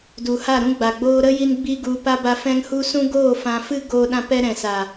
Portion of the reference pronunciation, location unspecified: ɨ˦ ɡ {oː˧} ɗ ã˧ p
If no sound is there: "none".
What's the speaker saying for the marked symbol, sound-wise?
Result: oː˧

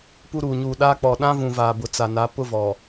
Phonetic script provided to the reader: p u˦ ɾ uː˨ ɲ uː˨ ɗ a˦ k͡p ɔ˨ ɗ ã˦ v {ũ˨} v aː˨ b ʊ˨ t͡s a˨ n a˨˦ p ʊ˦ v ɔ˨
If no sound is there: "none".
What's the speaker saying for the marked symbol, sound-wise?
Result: ũ˨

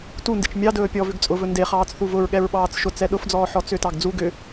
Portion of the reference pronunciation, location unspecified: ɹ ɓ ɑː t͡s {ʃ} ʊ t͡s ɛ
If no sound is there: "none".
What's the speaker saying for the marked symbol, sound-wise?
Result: ʃ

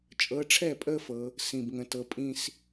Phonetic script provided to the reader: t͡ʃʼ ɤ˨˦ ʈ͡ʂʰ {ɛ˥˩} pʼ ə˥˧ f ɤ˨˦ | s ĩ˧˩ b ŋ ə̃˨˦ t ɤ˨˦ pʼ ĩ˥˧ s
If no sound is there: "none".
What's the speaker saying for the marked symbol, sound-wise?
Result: ɛ˥˩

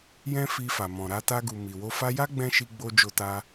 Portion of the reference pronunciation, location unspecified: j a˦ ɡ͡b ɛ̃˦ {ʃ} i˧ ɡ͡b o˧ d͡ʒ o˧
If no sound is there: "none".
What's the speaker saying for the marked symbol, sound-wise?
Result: ʃ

